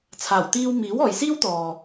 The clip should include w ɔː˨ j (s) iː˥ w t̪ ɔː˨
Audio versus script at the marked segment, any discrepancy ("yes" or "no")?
no